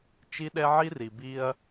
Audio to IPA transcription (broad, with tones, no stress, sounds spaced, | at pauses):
t͡ʃ i˦ ɗ ɛ˦ ʕ i˦ r i˨ b i˧ ɐ̯